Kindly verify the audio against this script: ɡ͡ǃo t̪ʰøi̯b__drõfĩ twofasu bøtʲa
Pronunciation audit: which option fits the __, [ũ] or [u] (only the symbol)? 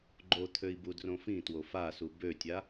u